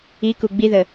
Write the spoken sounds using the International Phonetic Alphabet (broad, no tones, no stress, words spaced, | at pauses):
iku ɡ͡biðə